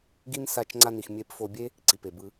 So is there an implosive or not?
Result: no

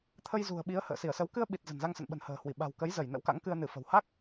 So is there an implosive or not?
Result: yes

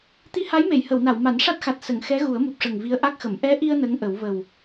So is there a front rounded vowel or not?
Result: no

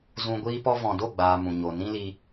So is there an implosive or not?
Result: no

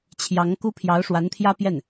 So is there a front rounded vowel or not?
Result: no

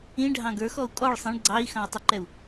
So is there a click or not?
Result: yes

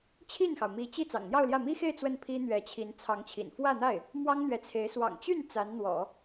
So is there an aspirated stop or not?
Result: yes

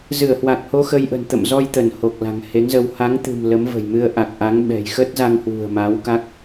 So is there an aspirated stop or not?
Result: no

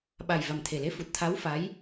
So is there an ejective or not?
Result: no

